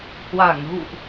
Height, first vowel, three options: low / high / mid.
low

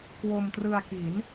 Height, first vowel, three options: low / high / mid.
mid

